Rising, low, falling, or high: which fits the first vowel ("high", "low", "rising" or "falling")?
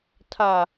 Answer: low